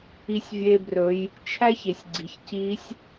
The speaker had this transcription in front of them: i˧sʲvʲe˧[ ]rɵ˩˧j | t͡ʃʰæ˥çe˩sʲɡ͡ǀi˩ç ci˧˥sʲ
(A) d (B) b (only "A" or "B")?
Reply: B